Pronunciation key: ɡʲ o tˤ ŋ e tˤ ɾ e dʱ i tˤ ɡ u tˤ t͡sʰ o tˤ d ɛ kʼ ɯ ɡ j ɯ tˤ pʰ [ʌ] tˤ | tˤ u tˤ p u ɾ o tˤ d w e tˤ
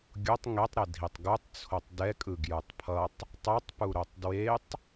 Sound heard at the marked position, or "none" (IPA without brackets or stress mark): ʌ